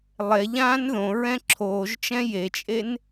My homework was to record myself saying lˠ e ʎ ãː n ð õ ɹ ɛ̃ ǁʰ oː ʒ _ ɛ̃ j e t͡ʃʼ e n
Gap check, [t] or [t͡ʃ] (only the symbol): t͡ʃ